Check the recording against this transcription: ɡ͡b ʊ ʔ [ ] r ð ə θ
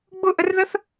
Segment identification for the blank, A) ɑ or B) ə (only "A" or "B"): B